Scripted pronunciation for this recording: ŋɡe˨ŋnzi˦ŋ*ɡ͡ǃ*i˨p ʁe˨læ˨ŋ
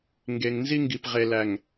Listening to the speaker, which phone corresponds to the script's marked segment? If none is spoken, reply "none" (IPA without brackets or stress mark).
ɡ